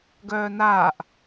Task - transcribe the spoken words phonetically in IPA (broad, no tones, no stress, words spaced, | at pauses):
ɡœːnaːʔ